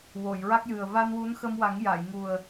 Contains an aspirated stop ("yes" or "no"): no